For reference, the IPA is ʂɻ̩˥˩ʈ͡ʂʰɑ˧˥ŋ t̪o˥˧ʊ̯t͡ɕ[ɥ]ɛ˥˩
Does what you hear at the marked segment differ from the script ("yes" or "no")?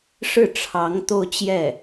yes